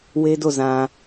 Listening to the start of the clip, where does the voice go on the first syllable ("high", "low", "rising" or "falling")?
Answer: high